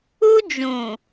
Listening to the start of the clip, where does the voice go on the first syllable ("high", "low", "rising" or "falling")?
high